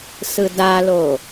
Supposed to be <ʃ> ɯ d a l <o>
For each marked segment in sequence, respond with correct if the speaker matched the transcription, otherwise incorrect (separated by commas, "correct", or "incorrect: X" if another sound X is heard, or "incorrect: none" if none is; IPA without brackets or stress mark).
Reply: incorrect: s, correct